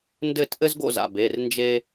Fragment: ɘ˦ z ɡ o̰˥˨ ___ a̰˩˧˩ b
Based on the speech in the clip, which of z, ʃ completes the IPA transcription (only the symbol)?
z